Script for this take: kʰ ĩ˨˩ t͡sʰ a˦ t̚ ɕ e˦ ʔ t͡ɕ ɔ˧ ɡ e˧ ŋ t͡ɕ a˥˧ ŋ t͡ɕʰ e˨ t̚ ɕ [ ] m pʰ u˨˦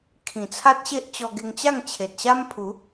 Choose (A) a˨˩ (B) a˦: B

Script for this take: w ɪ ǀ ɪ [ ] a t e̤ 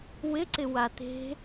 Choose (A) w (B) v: A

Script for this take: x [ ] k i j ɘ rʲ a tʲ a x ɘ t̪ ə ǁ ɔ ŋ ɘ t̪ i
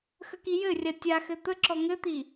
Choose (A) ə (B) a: A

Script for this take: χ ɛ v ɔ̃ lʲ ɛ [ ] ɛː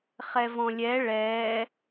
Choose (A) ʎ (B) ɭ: B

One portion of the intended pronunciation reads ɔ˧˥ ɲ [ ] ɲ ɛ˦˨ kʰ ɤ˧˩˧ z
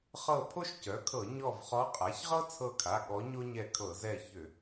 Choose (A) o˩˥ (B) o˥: B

